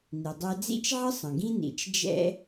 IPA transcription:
n i˩ dˤ ɛ˧ d͡z ḭ˥ t͡ʃ ʕ ə˥ sˤ ə̃˩ ɡ ĩ˥ n ḭ˩ t͡ʃ d͡ʒ ɛ̰˥

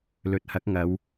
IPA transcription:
l ɵ˨ t̚ h ɐ˨˥ k̚ ŋ ɐ˨˧ w

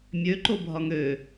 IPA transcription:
mʲ ø ǃ o bʱ ɒ ŋ ø

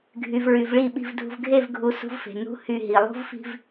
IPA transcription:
ɡʱ y˨ v ɹ y˨ v ɭ i˦˨ ɓ i̤˨ v dʱ ṳ˨ v ɡʱ e˦˨ v ɡʱ u˨ s ṳ˦ v f e̤˨ n ṳ˦ h y˦˨ ɦ i˨ lˠ ṳ˦ v f i̤˦ v

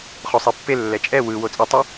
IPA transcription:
χ o sˤ i pː e lː ɛ t͡ʃʼ ɛ w ɯ w o t͡sʼ ɯ tˤ ʌ

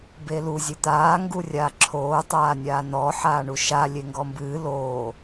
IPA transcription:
b e l u zʲ ɨ t̪ aː ŋ ɡ u rʲ aː ǁʰ oː tˤ aː nʲ aː n ɔ ħ aː ɳ u ʃ a lʲ e ŋ ɡ ɔ m b ɨː l oː

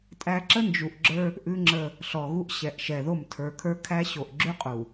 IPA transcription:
tʼ æ˦ ǁ ə˦ n d͡ʒ u˨ ʔ ɡ͡ǁ ə˞˦ | ʔ ʉ˦ ŋ͡ǁ ə˦ | ɬ ɔ˨ ɣ u˦ ʔ ɕ ɛ˨ ʔ ʃ ɛ˨ ð o˦˨ m tʰ ə˞˨ kʰ ə˞˦ kʰ æ˦ ɕ o˨ ʔ ɡ͡ǁ ʉ˦ qʼ u˨

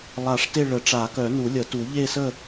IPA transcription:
lˠ a˨˩˦ ʂ t e˦˨ ɭ ə˨˩˦ ʈ͡ʂ a˨˩˦ k œ˨˩˦ n u˨˩˦ lʲ ə˨˩˦ t u˨˩˦ ʎ e˦˨ s ə˦˨

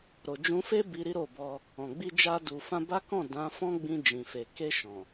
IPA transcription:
ɾ o˨ d͡ʒ ũ˧ f e˦ b i˧ ɾ i˦ ɾ o˦˨ b ɔ˧ | ɔ̃˨ ɡ͡b i˧ d͡ʒ a˧ d u˨ f ã˧ b a˦ k ɔ̃˦˨ d ã˨˦ f ɔ̃˦ ɡ͡b ĩ˧ d͡ʒ ĩ˨ f e˨ k e˧ ʃ ɔ̃˨

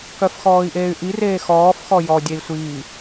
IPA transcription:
k œ f x ɔː i̯ ʔ eː y̯ ʔ i r eː x ɔː f x ɔ j ɔ dʲ e i̯ sʷ iː

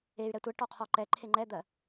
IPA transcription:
e y̯ ɾ ɛ tʷ ɛ ʈ ɔ qʰ ɔ ǃ ɛ ǃʰ e ŋ͡ǃ ɛ d̪ ɜ

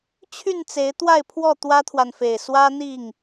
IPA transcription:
t͡ɕʰ y˥˨ n t͡s e˨˦ ɪ̯ t̪ w a˥˨ ɪ̯ pʰ w ɔ˥˨ t̪ w ä˦ t̪ʰ w a˨ n f e˨˩ ɪ̯ s w ä˦ n̪ i˥˨ ŋ

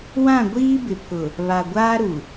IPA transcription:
w ã˦˨ ɡʷ iː˦ b ɪ˨ pʰ ʊ˨ | β a˨ ɡʷ aː˦ ɾ u˨

